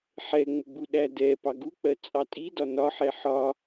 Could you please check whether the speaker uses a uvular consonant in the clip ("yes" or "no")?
no